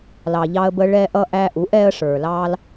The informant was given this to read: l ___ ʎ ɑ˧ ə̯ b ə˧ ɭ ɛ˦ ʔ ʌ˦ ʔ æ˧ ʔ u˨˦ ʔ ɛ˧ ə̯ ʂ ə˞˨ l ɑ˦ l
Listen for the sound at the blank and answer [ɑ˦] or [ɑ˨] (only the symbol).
ɑ˨